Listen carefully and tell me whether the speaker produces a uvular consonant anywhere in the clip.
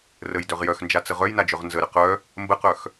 yes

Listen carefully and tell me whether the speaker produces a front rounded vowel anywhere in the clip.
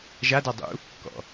no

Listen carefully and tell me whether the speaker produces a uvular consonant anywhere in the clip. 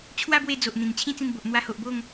no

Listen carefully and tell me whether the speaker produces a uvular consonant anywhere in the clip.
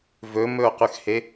yes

